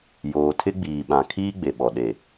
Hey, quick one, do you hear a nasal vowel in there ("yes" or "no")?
yes